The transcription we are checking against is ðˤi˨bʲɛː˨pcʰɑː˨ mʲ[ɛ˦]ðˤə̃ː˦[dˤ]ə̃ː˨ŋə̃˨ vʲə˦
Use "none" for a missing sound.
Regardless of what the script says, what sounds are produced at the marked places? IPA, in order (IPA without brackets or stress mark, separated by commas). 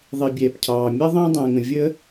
ɛ˦, dˤ